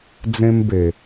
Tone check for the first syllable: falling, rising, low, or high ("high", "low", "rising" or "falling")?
high